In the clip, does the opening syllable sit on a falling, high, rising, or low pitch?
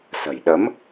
low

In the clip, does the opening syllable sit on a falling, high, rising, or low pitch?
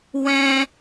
high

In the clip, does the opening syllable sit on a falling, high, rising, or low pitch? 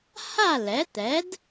falling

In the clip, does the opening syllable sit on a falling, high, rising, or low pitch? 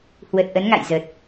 low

